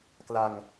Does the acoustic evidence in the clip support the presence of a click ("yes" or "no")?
no